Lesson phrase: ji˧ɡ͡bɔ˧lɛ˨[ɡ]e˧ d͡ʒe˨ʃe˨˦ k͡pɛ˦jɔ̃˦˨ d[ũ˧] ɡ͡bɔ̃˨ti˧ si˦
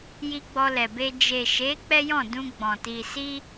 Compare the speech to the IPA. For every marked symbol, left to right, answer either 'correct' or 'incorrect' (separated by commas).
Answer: incorrect, correct